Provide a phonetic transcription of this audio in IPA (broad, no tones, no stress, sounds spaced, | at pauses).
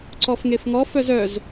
ǀ ɔ f ŋ e f ŋ ɔ f œ z œ z